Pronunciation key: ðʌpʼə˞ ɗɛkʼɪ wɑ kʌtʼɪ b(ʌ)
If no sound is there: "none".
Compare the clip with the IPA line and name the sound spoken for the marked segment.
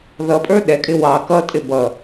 ʌ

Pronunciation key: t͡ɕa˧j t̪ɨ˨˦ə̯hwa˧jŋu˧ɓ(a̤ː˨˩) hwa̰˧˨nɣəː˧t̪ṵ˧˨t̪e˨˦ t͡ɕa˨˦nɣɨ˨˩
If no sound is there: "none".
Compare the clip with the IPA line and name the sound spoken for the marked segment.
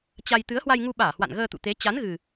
aː˧˩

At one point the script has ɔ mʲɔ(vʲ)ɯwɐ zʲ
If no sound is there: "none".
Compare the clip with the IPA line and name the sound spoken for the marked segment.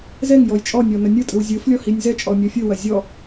fʲ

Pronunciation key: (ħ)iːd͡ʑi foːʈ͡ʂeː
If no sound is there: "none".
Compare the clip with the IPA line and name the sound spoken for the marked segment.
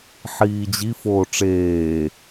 ħ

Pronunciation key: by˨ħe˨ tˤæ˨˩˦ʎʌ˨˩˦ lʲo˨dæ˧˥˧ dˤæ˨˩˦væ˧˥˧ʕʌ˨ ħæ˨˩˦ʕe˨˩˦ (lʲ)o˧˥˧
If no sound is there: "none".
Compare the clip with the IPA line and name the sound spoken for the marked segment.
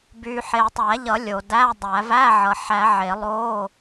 lˠ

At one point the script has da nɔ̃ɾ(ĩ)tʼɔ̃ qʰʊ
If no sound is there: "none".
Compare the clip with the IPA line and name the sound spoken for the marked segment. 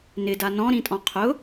ĩ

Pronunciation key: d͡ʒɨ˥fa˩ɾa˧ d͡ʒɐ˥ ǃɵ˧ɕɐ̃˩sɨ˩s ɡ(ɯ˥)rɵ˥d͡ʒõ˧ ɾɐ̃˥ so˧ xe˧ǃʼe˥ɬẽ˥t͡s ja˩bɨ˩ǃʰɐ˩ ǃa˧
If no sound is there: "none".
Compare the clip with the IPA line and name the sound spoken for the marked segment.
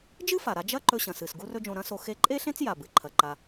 u˥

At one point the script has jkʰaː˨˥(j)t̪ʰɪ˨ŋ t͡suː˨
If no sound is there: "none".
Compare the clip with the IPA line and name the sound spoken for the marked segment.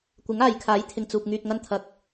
j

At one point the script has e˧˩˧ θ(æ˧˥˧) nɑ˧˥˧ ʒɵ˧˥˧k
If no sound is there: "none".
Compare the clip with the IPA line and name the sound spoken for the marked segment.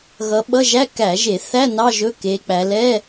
æ˧˥˧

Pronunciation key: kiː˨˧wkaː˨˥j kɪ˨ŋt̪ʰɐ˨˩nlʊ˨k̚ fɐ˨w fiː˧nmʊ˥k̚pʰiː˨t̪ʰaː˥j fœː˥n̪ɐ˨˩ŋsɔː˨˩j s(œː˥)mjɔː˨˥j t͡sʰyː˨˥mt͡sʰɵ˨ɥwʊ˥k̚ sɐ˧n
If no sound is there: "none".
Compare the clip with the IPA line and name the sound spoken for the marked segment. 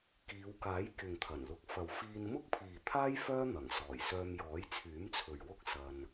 œː˧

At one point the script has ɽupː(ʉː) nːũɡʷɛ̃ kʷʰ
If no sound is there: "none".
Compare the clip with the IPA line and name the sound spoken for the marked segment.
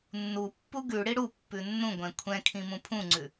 ʉ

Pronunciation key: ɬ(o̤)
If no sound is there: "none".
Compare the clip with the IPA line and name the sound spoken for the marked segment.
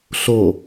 o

